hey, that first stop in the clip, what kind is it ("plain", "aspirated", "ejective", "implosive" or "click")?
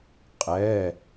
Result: ejective